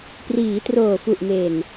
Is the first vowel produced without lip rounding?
yes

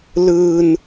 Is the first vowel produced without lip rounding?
yes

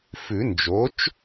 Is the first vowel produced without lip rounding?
no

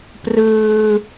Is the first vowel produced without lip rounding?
yes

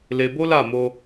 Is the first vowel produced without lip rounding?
yes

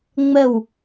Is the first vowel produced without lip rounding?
yes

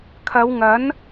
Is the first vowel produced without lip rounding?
yes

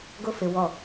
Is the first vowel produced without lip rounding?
no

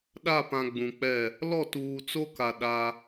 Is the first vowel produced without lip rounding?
yes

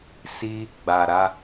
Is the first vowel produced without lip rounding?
yes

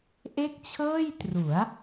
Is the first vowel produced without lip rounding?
yes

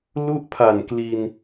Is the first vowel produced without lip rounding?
no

